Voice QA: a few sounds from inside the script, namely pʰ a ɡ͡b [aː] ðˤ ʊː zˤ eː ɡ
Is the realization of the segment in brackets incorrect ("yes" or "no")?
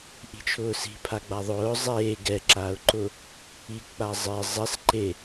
yes